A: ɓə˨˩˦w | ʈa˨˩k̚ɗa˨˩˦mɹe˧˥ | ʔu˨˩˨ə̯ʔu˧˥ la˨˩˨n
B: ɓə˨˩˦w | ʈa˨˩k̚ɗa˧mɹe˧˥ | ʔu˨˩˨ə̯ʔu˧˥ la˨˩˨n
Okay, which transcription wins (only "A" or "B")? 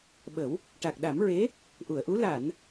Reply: A